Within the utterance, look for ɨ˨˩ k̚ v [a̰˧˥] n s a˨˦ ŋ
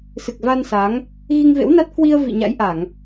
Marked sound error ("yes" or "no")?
yes